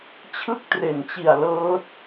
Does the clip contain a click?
no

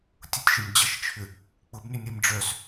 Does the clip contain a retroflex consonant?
yes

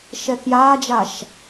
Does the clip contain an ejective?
no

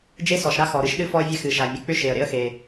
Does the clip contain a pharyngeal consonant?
no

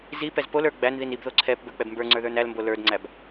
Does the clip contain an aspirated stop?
yes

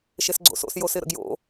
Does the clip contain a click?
yes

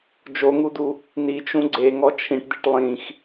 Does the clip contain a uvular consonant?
no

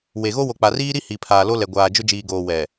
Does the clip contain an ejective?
no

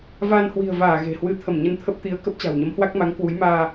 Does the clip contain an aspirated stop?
yes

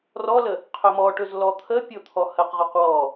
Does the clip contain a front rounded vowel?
no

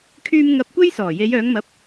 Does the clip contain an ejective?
no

